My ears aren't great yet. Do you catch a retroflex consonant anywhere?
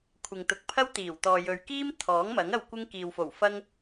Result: no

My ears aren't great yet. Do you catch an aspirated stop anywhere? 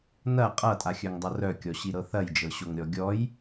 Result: no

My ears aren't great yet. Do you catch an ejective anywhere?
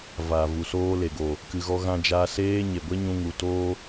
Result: no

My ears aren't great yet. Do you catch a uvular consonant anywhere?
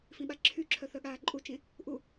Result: no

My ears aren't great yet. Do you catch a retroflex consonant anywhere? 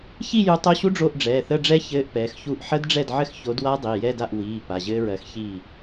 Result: yes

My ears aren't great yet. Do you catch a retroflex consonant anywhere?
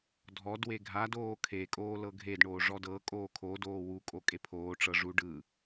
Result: yes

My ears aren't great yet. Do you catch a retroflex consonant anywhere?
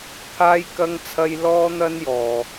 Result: no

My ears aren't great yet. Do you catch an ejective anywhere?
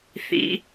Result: no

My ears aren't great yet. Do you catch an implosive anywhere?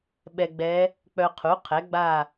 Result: yes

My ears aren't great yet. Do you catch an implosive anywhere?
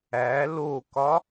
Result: no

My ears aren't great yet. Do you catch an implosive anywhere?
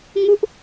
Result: no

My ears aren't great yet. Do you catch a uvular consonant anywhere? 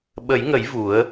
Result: no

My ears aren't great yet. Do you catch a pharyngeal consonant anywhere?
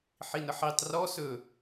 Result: yes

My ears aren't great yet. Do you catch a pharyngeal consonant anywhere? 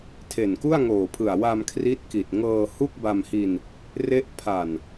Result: no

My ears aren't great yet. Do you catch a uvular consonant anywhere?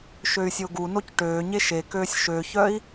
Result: no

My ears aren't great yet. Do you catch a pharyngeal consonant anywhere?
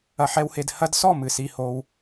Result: yes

